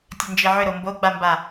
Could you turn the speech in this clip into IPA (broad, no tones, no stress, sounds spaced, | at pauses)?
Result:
tʲ ɘ n d͡ʒ i ʕ ʏ ɾ o m b o ɡ͡b a m b a